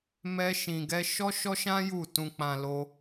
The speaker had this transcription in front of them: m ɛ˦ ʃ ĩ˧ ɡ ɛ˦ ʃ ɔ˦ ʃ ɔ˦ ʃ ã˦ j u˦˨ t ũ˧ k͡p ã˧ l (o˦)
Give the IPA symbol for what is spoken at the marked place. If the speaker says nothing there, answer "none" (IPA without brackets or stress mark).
o˦